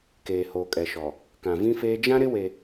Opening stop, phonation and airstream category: plain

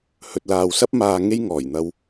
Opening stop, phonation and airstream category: plain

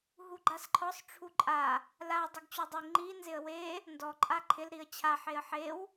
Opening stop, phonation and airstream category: click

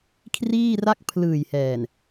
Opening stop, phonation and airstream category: aspirated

